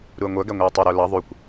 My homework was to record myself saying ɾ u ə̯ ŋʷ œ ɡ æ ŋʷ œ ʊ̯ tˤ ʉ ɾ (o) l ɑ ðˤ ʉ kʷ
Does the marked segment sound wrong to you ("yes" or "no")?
no